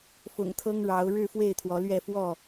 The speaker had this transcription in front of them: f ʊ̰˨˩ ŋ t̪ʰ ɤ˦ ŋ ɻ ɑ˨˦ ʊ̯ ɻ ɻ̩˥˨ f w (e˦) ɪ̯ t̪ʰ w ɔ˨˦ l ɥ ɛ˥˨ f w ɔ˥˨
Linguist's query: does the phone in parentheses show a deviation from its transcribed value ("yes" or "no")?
yes